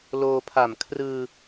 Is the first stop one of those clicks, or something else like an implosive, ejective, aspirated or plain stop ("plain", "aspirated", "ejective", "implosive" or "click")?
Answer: aspirated